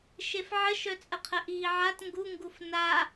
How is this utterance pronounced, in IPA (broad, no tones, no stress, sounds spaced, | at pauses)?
ʃ e f ʕ ə ʃ œ t͡sʼ ə qʰ ə ʔ iː ʕ a t ŋ ɡ u ŋ ɡ u f n a